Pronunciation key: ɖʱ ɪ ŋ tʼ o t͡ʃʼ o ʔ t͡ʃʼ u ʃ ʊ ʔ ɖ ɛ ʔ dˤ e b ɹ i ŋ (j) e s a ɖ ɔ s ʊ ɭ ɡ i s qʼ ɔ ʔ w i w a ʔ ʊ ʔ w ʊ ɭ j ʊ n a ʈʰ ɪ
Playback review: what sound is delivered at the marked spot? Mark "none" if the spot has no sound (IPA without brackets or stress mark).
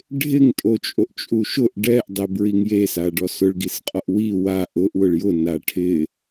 j